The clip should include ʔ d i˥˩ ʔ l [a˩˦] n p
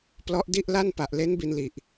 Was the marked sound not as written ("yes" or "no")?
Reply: yes